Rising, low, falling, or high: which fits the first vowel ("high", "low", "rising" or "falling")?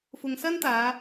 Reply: low